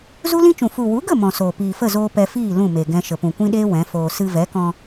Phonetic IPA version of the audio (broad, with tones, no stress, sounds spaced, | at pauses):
z u˦ l ĩ˦ t͡ʃ ũ˨ f u˨ w u˨˦ ɡ ə˦˨ m ɔ̃˨ s oː˨ p iː˨ f ə˦˨ z oː˧ p ɛ˧ f iː˦˨ l ũ˦˨ m e˨ ɡ ɛ̃˧ ʃ ə˨ p ũ˨ kʷ ĩ˦ ɗ eː˦ w ɛ̃˨˦ f oː˧ s ɨ˧ v ɛ˨˦ k ɔ̃˧